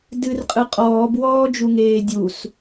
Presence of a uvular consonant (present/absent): present